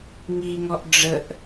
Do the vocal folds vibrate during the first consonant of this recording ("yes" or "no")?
yes